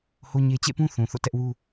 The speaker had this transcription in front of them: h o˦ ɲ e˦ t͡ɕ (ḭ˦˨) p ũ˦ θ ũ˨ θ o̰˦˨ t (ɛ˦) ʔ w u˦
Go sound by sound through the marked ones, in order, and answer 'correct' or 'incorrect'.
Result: incorrect, correct

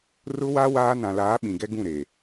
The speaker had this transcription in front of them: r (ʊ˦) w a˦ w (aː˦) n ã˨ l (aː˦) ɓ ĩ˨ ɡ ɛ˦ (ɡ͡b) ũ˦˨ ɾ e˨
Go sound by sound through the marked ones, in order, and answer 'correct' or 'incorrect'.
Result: correct, correct, incorrect, incorrect

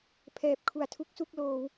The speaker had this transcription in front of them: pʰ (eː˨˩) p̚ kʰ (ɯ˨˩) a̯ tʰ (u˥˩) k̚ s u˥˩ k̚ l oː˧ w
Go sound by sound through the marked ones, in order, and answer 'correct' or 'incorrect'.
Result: incorrect, incorrect, incorrect

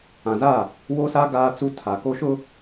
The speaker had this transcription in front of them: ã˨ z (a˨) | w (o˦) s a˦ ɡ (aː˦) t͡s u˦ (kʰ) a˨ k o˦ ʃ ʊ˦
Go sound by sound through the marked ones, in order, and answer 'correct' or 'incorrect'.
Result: incorrect, correct, correct, incorrect

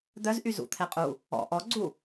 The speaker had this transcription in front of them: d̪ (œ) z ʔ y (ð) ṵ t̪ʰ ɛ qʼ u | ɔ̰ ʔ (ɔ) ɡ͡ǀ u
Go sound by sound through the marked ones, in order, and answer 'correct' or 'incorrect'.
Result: correct, incorrect, correct

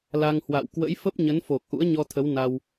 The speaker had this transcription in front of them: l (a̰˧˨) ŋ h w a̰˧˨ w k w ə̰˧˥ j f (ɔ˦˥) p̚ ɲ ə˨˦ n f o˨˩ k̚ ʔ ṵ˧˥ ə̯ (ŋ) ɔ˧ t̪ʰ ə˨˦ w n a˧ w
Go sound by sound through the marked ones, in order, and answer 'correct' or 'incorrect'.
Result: incorrect, incorrect, incorrect

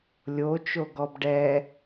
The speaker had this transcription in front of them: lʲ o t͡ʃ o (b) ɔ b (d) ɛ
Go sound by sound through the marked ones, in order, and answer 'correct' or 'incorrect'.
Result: incorrect, incorrect

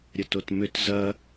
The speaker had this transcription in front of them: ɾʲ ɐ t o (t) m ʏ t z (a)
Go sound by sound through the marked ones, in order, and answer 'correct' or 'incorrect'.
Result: correct, incorrect

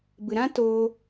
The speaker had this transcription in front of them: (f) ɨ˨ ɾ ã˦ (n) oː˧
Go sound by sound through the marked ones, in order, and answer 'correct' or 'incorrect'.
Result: incorrect, incorrect

